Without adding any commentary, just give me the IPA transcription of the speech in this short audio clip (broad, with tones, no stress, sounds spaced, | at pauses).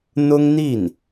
n̪ ʊ˥ ŋ n̪ i˥˩ n